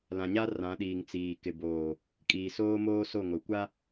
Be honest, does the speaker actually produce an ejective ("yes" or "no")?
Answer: yes